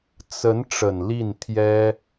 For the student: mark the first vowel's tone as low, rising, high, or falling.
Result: rising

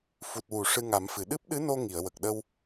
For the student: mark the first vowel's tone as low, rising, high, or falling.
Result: low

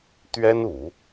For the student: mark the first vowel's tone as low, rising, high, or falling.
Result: high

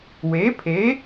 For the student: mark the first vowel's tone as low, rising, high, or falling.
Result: rising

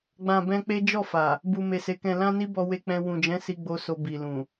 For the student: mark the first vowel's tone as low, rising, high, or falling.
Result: low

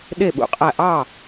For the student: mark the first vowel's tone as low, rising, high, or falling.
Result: falling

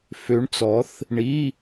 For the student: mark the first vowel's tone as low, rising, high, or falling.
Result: rising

